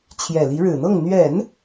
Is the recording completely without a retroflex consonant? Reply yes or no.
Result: no